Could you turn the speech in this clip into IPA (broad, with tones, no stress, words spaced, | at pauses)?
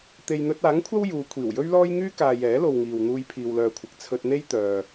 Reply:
t̪e˨jn̪ɵ˧t̚ aː˨˥ŋkʷʰɐ˥w juː˨˧ kʷʰiː˨˩wjɵ˥ɥlɔː˥j ŋyː˥kaː˨ jɛː˨˥lo˨wŋiː˨w n̪uː˧jpʰiː˨wlœː˨kʷʰɪ˨k̚ t͡sʰɵ˧t̚n̪e˥jt̪œː˨